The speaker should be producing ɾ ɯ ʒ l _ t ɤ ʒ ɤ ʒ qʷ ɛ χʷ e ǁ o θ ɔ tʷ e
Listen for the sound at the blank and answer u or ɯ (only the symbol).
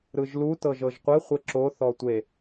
u